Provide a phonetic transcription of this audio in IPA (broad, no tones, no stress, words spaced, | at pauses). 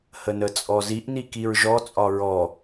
hənət͡sʼɔziʔ nikiɹʒɔ t͡sʼɒɹɔ